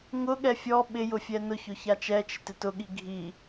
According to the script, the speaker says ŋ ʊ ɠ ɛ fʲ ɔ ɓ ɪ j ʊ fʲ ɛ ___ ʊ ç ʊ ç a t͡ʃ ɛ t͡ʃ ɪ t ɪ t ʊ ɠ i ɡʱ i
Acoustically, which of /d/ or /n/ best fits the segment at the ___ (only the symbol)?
n